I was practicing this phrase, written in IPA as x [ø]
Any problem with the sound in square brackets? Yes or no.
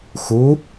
yes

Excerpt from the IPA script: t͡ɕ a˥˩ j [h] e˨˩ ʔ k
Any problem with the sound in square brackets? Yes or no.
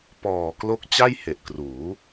no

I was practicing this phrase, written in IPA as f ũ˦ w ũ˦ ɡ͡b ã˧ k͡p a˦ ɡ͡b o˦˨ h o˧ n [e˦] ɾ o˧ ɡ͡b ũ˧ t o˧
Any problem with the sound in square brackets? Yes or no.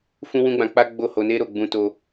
no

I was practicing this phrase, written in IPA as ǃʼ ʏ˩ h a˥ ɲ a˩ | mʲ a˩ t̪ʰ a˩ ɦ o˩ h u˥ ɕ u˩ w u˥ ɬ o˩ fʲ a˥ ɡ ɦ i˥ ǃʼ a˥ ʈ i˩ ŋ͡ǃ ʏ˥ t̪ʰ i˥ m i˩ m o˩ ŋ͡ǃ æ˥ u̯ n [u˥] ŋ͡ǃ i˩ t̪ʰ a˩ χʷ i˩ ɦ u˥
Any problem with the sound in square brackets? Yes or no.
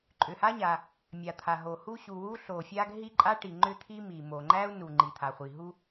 yes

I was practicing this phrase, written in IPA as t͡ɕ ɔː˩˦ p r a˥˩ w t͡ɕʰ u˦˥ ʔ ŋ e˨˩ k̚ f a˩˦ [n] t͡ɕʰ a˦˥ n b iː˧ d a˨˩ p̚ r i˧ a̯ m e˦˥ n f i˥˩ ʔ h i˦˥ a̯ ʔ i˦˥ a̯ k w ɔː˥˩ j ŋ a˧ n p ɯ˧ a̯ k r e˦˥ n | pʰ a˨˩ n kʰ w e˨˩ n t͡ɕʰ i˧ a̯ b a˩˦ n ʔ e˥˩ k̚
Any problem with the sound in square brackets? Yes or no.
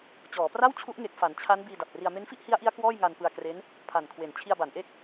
no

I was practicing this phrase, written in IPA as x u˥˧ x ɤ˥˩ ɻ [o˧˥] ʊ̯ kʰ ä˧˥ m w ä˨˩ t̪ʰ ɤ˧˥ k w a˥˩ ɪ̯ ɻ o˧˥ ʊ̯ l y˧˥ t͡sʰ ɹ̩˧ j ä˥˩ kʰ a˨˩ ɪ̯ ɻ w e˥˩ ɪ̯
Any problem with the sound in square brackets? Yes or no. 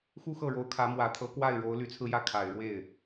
no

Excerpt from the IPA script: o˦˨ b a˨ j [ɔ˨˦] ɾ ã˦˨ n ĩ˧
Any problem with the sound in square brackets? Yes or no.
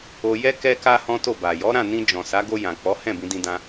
no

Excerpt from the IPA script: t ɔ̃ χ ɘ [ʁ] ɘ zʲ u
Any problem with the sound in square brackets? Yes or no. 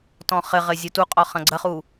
no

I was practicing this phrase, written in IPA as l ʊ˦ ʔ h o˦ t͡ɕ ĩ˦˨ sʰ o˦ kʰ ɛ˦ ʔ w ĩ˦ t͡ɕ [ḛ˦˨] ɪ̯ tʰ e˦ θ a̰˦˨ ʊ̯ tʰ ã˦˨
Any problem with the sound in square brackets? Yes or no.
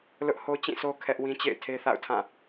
no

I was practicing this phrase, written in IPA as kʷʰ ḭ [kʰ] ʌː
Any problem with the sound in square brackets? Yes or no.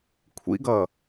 yes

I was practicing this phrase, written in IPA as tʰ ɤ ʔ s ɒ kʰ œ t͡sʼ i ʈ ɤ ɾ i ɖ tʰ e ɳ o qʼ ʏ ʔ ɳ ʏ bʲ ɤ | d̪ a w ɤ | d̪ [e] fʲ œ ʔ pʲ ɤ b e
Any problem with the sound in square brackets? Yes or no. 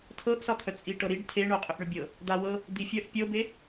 yes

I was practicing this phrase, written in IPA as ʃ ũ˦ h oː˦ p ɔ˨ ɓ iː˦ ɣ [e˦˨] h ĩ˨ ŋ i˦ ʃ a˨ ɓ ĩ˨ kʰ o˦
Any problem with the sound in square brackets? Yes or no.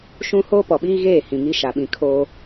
yes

